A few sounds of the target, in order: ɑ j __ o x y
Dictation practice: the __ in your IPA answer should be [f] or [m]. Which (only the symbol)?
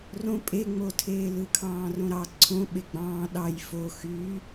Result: f